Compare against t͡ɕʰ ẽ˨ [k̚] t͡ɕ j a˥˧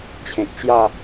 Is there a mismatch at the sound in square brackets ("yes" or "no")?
no